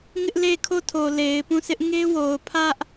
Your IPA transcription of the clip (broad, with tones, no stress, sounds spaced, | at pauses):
ŋ ɪ˦ ʔ l e˦˨ kʰ o˦˨ tʰ o˨ l e˨ ɪ̯ p ũ˦˨ s ɪ˦ ʔ ŋ e˦ w o˨ ʊ̯ pʰ ä˦ ʔ